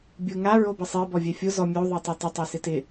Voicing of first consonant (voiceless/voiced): voiced